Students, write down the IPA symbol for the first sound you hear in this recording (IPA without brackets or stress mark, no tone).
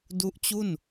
d